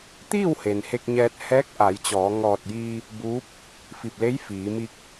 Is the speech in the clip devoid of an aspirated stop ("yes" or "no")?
yes